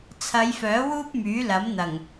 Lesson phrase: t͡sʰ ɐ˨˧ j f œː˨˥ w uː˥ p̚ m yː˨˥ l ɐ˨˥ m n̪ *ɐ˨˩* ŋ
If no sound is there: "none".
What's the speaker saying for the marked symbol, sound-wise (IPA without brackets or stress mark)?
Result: ɐ˨˩